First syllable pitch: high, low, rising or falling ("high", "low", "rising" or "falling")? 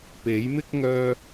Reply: rising